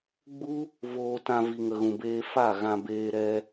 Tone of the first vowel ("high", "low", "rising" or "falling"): high